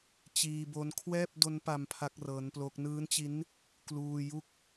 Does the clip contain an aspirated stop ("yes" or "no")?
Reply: yes